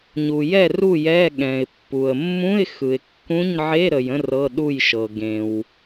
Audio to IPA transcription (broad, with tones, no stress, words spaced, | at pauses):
ɲu˨jɛ˥˨ru˥˨jɛ˧˥˧ ɠɛ̃˨ɪ̯pːu˨ə̯ mːũ˧˥˧ɪ̯ xɯ˨ɪ̯kːũ˧˥˧ɲ ʕe˧˥˧ɾə˨jə̃˥˨ rɤ˧˥˧ɗu˥˨jʃɤ˨ ɡẽ˨w